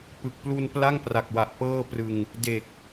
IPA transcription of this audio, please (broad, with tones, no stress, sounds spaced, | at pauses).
p ɯ˨˩ k̚ p l u˧ n p l a˥˩ ŋ p r a˨˩ k̚ w a˨˩ ʔ p ɤː˥˩ p r ɯ˧ ŋ | d e˨˩ k̚